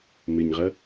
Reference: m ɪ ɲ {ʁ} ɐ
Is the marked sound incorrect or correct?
correct